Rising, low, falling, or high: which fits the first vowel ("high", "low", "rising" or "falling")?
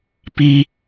high